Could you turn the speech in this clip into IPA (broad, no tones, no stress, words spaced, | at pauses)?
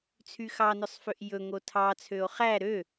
t͡sʰyxɑnœsˤføʔ jɵ ŋotʰɑ t͡sʰøo̯χæ ɾø